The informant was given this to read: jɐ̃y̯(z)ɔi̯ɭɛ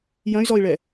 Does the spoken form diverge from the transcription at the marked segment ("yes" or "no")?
no